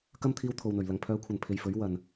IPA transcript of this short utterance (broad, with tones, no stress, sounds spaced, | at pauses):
k ɐ˥ m t̪ʰ iː˧ w t̪ʰ o˨ w n̪ ɵ˨˩ ɥ l ɐ˨˩ ŋ pʰ œː˨ kʷʰ ɐ˨˩ n pʰ e˨ j f ɵ˨˥ ɥ w ɐ˨ n